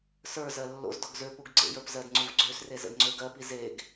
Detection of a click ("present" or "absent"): present